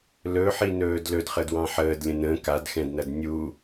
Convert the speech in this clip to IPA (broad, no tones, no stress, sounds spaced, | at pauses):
l ɵ ħ i n ɵː d l ɵ d χ ə d w ɑ̃ ħ əː d lʲ ə̃ n ə̃ k a d x ɛ̃ d n ɐ d nʲ u